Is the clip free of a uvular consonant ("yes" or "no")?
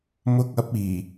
yes